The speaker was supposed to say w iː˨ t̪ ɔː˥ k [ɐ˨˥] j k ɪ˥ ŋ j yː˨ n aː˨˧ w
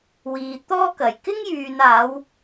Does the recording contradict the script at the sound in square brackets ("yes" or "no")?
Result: yes